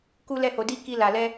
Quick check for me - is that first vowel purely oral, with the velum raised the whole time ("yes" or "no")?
yes